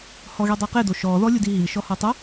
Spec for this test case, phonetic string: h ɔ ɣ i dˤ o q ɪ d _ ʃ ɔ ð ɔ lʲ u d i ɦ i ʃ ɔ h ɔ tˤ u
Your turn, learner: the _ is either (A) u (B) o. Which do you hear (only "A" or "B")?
B